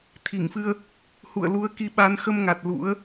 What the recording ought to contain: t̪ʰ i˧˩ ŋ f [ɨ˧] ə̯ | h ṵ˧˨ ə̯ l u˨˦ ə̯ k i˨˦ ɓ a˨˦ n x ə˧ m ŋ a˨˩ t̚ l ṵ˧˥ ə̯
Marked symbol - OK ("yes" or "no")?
yes